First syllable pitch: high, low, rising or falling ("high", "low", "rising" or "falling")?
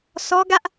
high